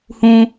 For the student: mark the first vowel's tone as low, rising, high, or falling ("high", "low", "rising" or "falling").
high